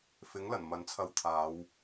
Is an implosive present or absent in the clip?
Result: absent